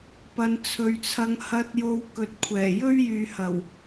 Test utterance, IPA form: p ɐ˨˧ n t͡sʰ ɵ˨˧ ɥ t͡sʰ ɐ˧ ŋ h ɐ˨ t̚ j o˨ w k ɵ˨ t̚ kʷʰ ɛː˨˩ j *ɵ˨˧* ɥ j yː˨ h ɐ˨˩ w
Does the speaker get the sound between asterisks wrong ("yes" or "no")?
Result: yes